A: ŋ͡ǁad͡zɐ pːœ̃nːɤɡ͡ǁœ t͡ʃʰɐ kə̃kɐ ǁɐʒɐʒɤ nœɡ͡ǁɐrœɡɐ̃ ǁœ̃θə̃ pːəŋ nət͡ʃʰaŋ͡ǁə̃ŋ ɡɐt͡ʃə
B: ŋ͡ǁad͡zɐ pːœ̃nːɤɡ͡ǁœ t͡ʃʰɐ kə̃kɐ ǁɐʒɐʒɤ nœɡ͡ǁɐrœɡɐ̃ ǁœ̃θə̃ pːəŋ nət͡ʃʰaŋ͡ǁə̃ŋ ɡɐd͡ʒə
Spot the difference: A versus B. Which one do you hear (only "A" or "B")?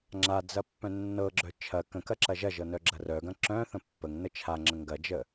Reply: B